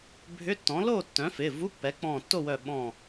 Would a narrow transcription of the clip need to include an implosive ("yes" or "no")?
yes